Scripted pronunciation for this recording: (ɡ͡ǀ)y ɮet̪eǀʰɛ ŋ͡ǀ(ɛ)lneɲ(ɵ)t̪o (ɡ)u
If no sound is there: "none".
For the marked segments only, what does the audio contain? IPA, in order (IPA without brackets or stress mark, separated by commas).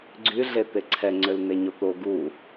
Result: ɡ͡ǀ, ø, o, ɡ